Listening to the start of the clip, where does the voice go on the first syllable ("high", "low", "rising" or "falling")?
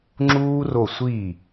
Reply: high